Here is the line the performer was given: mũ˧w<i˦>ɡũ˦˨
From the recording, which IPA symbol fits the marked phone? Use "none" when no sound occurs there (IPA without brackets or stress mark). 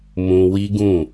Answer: i˦